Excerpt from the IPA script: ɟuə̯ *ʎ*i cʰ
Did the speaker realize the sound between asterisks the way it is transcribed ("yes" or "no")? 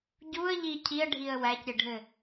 yes